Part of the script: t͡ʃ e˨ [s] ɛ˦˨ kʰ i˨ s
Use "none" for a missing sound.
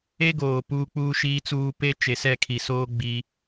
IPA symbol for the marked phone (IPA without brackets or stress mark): s